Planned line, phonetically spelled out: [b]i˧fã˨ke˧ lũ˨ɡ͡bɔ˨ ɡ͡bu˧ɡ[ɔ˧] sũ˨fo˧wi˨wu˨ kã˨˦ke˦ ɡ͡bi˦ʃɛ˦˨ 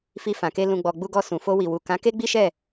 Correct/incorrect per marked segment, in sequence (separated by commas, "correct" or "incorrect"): incorrect, correct